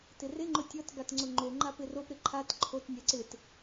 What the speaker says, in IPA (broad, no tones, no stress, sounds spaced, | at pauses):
t ɪ r ɪ ŋ͡ǃ ʊ tʲ ɔ t ɡ a t ŋ͡ǀ ʊ ŋ͡ǃ o ŋ͡ǃ a p ɪ r o p ɾ ɪ ǃʰ a t ǃʰ o t nʲ a ǀ ɪ t